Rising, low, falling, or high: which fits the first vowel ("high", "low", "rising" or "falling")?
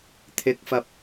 rising